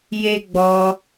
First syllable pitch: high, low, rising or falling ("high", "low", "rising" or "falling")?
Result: high